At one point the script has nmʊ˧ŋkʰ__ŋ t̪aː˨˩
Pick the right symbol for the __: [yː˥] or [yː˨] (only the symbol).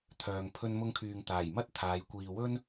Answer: yː˨